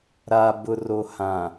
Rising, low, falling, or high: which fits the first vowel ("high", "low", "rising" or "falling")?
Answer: low